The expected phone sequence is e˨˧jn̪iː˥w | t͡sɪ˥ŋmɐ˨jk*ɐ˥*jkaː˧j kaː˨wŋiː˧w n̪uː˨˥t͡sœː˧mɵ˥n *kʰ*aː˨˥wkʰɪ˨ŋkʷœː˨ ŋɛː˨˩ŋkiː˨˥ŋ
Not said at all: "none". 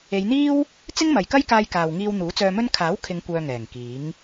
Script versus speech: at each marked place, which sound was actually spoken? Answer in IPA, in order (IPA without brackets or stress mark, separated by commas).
ɐ˥, kʰ